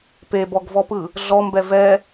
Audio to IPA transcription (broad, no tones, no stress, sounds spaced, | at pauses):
p e b ɔ ɡ v ɔ p ɯ | ɮ ɔ m b ɛ v ɛ